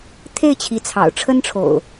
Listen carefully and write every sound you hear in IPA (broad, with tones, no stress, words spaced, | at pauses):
t̪ʰe˥˨ɪ̯t͡ɕʰi˨˦ t͡sʰɑ̰˨˩ʊ̯ʈ͡ʂʰə˦nʈ͡ʂʰo̰˨˩ʊ̯